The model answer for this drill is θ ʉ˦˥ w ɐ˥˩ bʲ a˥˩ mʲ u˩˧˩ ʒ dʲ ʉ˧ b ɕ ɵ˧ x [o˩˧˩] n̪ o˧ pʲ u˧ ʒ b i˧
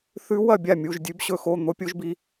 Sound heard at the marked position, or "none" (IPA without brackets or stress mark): o˩˧˩